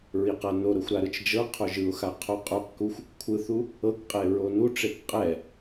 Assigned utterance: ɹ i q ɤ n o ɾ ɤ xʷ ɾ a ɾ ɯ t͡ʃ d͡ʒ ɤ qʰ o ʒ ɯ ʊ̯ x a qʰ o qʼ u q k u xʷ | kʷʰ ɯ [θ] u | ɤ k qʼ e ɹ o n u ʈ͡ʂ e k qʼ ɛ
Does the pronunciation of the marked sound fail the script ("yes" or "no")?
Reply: no